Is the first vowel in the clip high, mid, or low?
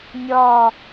low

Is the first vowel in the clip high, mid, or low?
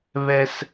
mid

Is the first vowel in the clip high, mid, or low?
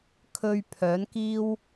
mid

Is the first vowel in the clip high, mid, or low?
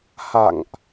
low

